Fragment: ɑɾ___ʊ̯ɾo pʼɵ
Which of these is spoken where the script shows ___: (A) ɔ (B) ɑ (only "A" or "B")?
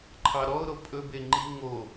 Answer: A